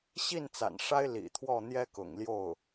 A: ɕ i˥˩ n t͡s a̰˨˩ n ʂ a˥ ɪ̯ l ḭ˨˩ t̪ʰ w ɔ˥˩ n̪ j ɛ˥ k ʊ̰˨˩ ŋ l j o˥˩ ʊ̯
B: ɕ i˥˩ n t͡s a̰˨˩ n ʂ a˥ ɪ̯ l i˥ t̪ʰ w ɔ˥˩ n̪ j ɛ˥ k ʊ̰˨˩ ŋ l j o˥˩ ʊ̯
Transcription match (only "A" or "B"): A